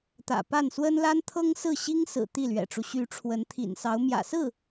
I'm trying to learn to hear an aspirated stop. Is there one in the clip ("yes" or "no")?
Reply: yes